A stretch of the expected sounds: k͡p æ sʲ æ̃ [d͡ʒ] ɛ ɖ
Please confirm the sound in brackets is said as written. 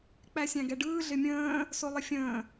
no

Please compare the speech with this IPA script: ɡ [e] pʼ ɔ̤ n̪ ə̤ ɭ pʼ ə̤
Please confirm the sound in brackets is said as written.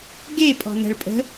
yes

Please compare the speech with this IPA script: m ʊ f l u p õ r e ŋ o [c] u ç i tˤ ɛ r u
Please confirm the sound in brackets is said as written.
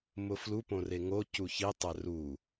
yes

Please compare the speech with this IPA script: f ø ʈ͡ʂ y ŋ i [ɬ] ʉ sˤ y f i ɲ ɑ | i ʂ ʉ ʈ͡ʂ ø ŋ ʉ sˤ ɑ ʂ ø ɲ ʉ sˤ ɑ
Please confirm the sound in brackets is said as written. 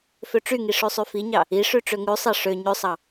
no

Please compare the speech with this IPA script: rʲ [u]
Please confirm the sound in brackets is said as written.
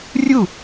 yes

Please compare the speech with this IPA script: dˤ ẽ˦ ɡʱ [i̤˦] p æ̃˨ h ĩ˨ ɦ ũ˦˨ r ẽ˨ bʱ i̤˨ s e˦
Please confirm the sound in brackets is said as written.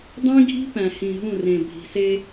yes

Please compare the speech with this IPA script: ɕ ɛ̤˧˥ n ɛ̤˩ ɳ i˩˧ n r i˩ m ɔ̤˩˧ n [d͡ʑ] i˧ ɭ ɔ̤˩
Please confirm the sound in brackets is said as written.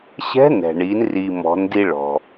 no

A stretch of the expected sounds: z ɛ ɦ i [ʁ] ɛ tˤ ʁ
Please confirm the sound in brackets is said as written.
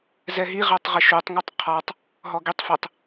yes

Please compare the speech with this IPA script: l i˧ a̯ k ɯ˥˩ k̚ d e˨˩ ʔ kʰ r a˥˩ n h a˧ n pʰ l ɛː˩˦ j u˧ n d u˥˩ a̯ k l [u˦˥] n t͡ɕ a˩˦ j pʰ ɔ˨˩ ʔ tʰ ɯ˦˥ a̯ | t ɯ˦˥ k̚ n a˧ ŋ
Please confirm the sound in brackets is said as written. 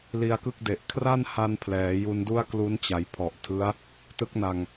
yes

